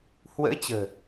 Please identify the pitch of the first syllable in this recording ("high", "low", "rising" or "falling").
rising